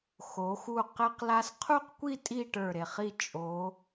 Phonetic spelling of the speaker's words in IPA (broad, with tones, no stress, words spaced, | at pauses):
xo˩˧xu˧˩ qe˧qla˧s qʰu˥˧qkʷi˥˧ tʼi˥˧ʈə˞˧˩ɾe˧˩ χi˧˩ t͡ʃʼo˩˧